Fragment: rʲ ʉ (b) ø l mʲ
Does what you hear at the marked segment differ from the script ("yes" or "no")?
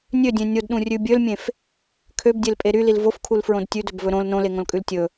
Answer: yes